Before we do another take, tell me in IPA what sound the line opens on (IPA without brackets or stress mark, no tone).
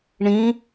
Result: ɳ